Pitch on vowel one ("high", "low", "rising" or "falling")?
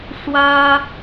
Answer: high